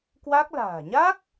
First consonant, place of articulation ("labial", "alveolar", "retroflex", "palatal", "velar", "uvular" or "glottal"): velar